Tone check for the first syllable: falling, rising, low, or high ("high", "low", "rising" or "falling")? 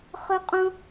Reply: high